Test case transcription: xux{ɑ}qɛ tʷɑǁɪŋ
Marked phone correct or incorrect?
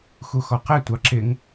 incorrect